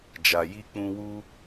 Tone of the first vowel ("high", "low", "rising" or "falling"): low